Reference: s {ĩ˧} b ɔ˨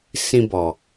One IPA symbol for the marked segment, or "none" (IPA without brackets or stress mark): ĩ˧